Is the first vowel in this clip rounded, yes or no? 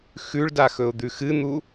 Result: yes